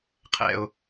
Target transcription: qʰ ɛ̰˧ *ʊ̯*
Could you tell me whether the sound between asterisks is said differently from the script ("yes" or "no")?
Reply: no